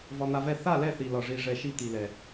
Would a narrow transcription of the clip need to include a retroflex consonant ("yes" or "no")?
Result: yes